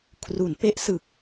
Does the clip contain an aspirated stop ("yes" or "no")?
yes